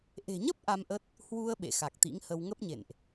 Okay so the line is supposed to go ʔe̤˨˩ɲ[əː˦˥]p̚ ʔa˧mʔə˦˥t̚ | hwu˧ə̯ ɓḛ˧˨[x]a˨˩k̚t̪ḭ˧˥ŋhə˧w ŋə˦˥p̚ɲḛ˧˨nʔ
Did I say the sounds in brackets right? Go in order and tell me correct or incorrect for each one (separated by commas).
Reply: incorrect, correct